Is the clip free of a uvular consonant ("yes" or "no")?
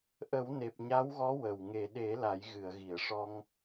yes